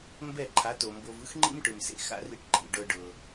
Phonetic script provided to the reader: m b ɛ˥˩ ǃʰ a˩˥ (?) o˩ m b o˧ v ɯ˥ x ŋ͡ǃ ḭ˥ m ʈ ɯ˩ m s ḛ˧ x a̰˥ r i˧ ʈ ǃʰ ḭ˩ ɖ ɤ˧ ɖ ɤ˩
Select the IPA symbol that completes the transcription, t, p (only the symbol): t